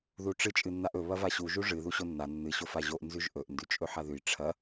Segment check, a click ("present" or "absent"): absent